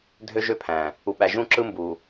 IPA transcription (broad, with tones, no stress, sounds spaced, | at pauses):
dʱ ø˦ ʒ ø˦ pʰ æ̃˨ | u˨ ɓ æ˨ ʒ ũ˦ ǁ ɯ˦ m b u˨